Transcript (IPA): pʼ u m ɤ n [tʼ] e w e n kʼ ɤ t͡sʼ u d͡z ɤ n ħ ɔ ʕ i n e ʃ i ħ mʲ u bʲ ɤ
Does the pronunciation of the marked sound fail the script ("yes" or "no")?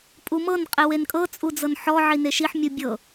yes